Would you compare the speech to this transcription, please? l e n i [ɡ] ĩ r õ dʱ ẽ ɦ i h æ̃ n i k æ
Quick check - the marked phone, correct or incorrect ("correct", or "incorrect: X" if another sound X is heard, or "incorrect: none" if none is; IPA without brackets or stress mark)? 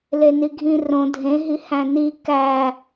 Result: incorrect: ɡʱ